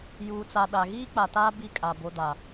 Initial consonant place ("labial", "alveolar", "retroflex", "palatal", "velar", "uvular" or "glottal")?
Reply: palatal